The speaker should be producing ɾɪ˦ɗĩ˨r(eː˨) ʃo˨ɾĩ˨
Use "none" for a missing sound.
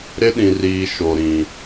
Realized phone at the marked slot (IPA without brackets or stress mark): iː˨